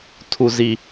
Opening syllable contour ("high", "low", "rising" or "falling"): low